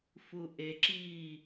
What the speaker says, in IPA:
f u ʔ e ǁ iː

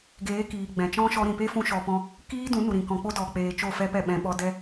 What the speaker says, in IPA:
ɡ eː˨˦ k iː˨ ɡ͡b ɛ̃˨ t͡ʃ ɔ̃˦ ʃ ɔ˧ ɾ ĩ˨ p e˦ f ũ˧ ʃ ɔ˧ p ɔ̃˦ | k iː˦ d ũ˨˦ n u˨ ɾ ĩ˨ k ɔ̃˨ k͡p o˦ d ɔ˨ k͡p eː˨ t͡ʃ o˦˨ f ɛ˦ p ɛ˦˨ ɓ ɛ̃˧ ɓ ɔ˧ d ɛ˦

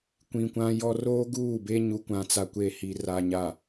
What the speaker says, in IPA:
kʷ ĩ˨ kʷ ã˦ j ɔ˦ r oː˦ ɡ uː˦˨ b e˦ ɲ u˨ kʷ ã˨ t͡s a˨ kʷ e˨ h i˨ r a˨ ɲ a˨

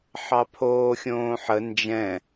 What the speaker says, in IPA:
ħ ɑ pʰ oː xʲ õː ħ ə n d͡ʒ ɛ̃

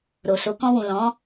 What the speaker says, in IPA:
ɾ o˨ s o˨˦ k ɔ̃˧ w ũ˨ l ɔ̃˨˦

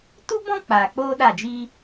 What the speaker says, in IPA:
t u˦ b ɔ̃˦ k͡p aː˨ k͡p oː˦ ɗ a˦˨ d͡ʒ i˦

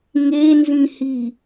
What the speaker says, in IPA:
ŋ e n z ĩ h i

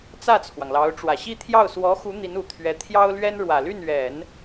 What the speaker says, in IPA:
t͡s ä˥˩ t͡sʰ w ɑ˩ ŋ l ɑ˧˥ ʊ̯ ʈ͡ʂ w ä˨˩ ɕ i˥˧ t̪ʰ j ɑ˥˩ ʊ̯ s w ɔ˧˥ x u˧˥ n̪ i˧˥ n u˨˩ t̪ʰ ɥ ɛ˧˥ t̪ʰ j ɑ˥ ʊ̯ l ɥ ɛ˥ n ɻ w ä˨˩ l y˥˩ n ɥ ɛ˨˩˦ n

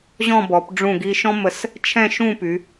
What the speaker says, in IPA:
ʑ ɔ̃˥˧ b ɔ˩˧ p ɖ͡ʐ ũ˧˩ ɡ i˧ ʃ ɔ̃˥ m ə˧˩ s | t͡ʃʰ ɛ̃˥˧ ʃ ũ˥˧ p y˩˧

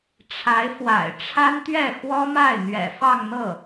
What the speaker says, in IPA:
ʈ͡ʂʰ a˧˥ ɪ̯ f w a̰˨˩ ɪ̯ ʈ͡ʂʰ a˥ n t̪ ɥ ɛ˥˩ x w ɔ˥ m a˥˩ ɪ̯ n̪ ɥ ɛ̰˨˩ f ɑ˥˧ ŋ n̪ ɤ˥˩

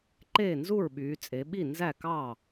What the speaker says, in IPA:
ǃ eː˥˩ n z u˥˩ ɹ ɓ yː˩˧ t͡sʼ e˩˧ ɓ i˥˩ n z æ˥˩ k ɑː˥˩

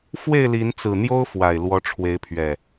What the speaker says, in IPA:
f w e˥˨ ɪ̯ l i˨˦ n t͡s ɹ̩˨˩ n̪ j o˦ ʊ̯ f w a˨˩ ɪ̯ l w ɔ˨˦ ʈ͡ʂʰ w e˨˦ ɪ̯ pʰ ɥ ɛ˨˩

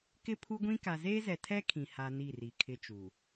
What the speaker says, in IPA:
k ɪ˦ pʰ u˦ ɡʷ ĩ˦ k a˨ z eː˦ z ɛ˨ tʰ ɛ˦ kʰ ĩ˨ h a˦ n i˦˨ r i˨ kʰ ɪ˦ t͡ʃ u˨

